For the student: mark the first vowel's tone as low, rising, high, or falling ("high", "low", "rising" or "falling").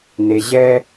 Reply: low